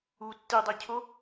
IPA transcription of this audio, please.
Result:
u tːidˤecʰo

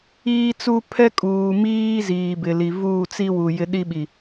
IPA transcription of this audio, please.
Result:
iː˦t͡su˦ pʰɛ˦kʼuː˨miː˦ ziː˨bɪ˨li˨ vuː˦˨t͡si˦wu˨ jɪ˦ɗi˦ɓi˨

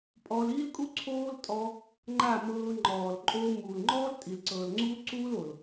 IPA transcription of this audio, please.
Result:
pʼɔː˧liː˦lkʼu˦ ǀʰoː˦l tʼɔ˧ | ŋ͡ǃa˦˨mɤː˧ ŋ͡ǃɔː˨l ǃʼoː˧ muː˨lŋ͡ǃɔː˦l tʼi˨lǀɤː˨lŋ͡ǀuː˦ǀuː˦l o˨l

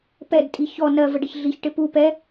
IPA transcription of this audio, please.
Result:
pɛdtʼi çɔ nɜvəɖɪç ɮiçʈɪ pu pɛ

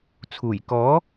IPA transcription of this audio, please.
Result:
t͡sʰuː˨˩j kɔː˨˥

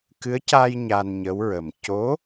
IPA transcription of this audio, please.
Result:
kɨ˧˥ə̯ca˧j ɲa˧nɲə˧˥wɹə˨˩m co˧˥

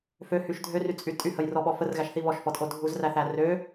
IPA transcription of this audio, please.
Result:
føhyʃ dʱøryt͡sʼy tʼyhəjrɔɓɔ fərɣæʃθi βɔʃfɔtʼo dʱuzræθæ rø

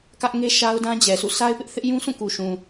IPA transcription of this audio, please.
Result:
kä˦ʔŋe˦ʃa˦ʊ̯ dã˦d͡ʑɛ˨sʰṵ˦˨ sa˦ɪ̯pɪ˦ʔ θɪ˦ʔjũ˦sʰũ˦˨ ku˨ʃũ˨

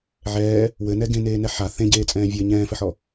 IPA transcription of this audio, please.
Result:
ʕɛː | wɘnɛ ɡẽneːnɛ ħa θẽɟeːt͡sʼɛ̃ː vʲɘ ɲɛ̃ːfɘħɔ

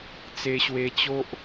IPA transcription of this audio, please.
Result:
t͡se˧ɕwe˧t͡ɕo˦ʔ

